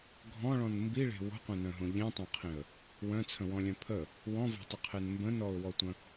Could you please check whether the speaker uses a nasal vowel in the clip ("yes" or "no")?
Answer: yes